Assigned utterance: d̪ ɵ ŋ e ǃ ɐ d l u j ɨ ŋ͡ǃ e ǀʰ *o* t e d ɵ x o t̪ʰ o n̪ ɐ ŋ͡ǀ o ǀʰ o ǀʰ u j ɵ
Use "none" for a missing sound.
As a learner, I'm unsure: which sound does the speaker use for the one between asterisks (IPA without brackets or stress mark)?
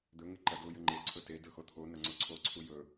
ɵ